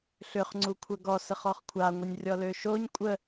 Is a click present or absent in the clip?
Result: present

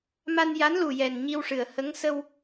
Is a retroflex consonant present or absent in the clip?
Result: present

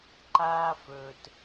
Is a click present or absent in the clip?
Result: present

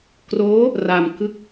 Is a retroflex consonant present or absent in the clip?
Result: absent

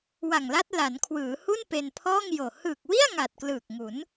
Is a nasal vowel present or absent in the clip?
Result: absent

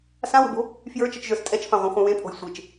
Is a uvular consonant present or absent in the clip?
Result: present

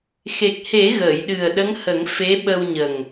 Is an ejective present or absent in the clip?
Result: absent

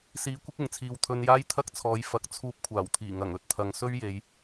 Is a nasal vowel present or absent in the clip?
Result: absent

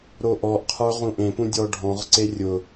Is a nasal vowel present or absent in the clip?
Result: present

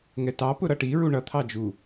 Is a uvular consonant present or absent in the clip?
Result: absent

